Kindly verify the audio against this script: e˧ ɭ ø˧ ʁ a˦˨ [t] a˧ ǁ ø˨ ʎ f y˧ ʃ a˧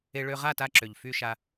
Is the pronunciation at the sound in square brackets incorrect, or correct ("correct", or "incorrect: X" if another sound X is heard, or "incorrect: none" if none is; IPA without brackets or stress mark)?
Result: correct